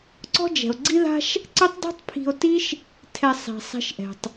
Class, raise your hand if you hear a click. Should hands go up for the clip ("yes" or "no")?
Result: yes